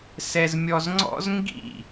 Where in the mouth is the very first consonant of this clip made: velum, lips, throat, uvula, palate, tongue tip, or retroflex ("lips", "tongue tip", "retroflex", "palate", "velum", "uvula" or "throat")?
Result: tongue tip